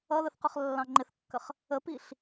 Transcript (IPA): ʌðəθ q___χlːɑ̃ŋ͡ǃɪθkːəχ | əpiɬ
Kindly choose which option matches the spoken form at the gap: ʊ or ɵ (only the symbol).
ʊ